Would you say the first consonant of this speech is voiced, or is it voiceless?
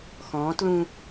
voiceless